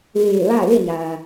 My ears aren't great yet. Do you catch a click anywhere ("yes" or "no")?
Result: no